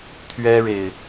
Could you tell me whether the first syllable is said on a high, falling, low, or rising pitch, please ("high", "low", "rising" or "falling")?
high